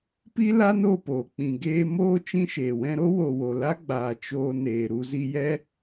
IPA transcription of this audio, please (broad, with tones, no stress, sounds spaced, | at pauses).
p i˦ l a˦ n o˦˨ p oː˨ k͡p ĩ˨ ɡ eː˧ m oː˧ t͡ʃ ĩ˧ ʃ eː˨ w ɛ̃˧ ɾ o˦ w o˨ w o˨ l a˦ ɡ͡b aː˨ t͡ʃ oː˧ n eː˨ ɾ u˧ z i˧ j ɛ˦